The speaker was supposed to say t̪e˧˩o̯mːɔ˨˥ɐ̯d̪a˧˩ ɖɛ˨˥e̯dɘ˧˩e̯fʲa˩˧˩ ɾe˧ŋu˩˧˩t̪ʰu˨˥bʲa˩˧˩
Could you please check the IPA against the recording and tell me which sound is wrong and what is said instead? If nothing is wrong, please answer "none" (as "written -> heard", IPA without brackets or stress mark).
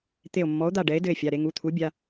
ɐ̯ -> o̯